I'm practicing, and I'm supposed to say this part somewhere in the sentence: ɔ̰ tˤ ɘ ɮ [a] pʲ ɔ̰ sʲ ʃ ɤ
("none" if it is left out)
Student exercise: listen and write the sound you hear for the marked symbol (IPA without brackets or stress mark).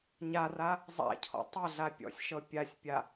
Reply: a